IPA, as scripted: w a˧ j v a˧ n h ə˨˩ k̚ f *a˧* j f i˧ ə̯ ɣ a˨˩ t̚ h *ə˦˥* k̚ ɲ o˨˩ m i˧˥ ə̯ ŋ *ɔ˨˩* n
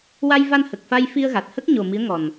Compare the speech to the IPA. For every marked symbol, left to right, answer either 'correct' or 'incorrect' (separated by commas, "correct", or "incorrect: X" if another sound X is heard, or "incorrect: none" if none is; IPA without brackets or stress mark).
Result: correct, correct, correct